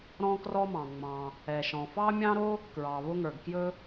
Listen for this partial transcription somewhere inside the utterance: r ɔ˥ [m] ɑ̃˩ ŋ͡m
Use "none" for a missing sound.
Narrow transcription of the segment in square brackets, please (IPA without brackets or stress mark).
m